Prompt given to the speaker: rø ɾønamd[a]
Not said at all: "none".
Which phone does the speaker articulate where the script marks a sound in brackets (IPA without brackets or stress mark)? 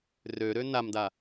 a